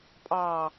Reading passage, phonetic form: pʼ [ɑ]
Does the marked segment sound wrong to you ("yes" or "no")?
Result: no